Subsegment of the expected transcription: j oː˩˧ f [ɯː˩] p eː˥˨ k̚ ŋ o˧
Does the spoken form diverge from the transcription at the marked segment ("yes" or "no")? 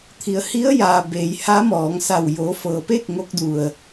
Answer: yes